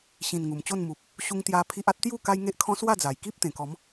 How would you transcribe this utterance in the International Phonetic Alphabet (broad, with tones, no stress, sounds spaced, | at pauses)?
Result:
ɕ ĩ˨˩ n ŋ u˨˩ m t͡ɕ o˥˧ n m u˨ p̚ | ɕ u˧ ŋ t̪ j a˧ pʰ i˦ ʔ a˦ t̚ t̪ j u˥˧ k a˦ j ŋ e˦ ʔ kʰ ɔ̃˦ s w a˥˧ d͡z a˨˩ j k i˦ p̚ t̪ ẽ˨˩ k ɔ˨˦ m